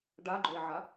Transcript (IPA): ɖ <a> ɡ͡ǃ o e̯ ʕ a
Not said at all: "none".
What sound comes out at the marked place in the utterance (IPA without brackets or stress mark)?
a